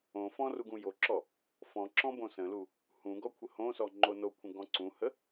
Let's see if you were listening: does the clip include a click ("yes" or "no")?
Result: yes